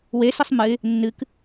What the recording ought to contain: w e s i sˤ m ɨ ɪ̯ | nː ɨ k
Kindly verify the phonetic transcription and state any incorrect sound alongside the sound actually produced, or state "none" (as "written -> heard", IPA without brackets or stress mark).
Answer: none